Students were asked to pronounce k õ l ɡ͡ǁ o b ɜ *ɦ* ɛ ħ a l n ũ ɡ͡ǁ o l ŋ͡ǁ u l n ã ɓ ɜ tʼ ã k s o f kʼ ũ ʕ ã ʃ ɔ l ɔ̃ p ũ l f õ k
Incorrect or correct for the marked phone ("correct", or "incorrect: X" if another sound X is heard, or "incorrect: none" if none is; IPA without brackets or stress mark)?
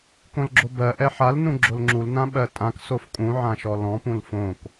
incorrect: ʔ